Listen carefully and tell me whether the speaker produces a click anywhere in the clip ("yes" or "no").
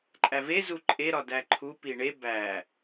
yes